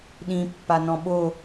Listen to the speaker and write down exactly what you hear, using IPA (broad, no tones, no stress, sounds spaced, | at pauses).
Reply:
ɗ ĩ pː a n ɔ̃ ɓ o